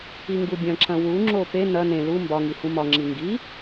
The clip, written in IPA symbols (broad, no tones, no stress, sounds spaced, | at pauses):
i ŋ ɡ u bʲ ɐ̃ ǁ ɐ̃ w u ŋ͡ǁ o p e n ɐ n ẽ l u m b ɒ ŋ i h ũ m ɒ ŋ͡ǁ i ŋ ɡ i